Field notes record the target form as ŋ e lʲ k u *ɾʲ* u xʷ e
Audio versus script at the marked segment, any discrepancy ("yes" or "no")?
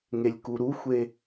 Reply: yes